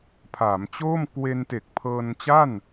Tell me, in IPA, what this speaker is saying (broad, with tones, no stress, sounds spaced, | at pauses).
pʰ aː˩˦ m t͡ɕ oː˥˩ m k w e˧ n t e˨˩ k̚ pʰ ɤː˧ n t͡ɕ a˥˩ n